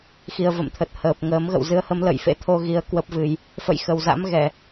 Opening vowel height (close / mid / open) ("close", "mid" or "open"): close